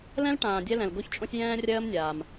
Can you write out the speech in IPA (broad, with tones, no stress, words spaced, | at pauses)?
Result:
lɛ̃˥lʈãː˨ dʲɛ˥lɛ̃˨l ɡo˥çt͡ʃʼõ˥sʲ jɛ̃ː˥rʲɜː˥mnʲaː˨m